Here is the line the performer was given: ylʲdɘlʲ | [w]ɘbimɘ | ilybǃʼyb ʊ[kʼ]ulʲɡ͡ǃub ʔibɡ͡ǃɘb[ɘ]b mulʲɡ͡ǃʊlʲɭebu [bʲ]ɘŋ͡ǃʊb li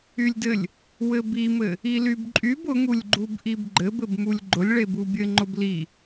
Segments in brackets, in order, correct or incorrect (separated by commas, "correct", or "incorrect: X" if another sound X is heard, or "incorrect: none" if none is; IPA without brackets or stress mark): correct, incorrect: ŋ, correct, correct